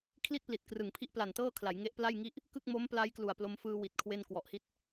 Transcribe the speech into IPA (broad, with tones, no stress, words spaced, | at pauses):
kʰli˥˩t̚pli˨˩t̚krɯ˨˩ŋpʰi˦˥ʔ pla˨˩ntɤː˥˩kʰla˩˦j ŋe˦˥ʔpla˥˩jŋi˥˩ʔ | kɯ˥˩k̚ mo˦˥m pla˦˥j klu˨˩a̯plo˧mfɯː˧ wi˨˩t̚kʰwe˧n kwɔ˨˩ʔhi˦˥t̚